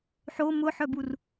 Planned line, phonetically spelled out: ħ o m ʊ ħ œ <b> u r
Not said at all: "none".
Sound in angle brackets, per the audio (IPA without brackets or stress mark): b